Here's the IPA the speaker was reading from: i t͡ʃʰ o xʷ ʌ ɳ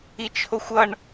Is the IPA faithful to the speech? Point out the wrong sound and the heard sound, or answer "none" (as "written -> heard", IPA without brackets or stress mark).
none